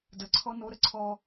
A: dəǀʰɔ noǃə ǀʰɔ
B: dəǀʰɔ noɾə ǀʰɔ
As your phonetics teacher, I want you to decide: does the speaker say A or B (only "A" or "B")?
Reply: B